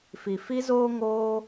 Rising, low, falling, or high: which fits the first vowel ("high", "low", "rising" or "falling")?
low